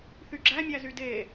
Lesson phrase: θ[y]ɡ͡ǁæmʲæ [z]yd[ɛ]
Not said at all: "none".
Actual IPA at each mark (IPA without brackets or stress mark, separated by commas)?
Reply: y, z, e